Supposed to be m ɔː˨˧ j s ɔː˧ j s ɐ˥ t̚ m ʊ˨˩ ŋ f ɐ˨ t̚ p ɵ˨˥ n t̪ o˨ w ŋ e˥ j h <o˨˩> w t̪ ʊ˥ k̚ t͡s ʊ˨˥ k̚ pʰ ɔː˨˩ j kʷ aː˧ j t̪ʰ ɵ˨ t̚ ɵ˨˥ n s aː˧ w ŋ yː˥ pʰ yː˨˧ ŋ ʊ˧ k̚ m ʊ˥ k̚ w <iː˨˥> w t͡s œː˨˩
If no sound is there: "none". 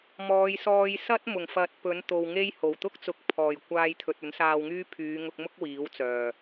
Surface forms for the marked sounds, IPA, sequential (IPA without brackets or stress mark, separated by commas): o˨˩, iː˨˥